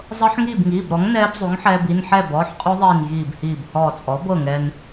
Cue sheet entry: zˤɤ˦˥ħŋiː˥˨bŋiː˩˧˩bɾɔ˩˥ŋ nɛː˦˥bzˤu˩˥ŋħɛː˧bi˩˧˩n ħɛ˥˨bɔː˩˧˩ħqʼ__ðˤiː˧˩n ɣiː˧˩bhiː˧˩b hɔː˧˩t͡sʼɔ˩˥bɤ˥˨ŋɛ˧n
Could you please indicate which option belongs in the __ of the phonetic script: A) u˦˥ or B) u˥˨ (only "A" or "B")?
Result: A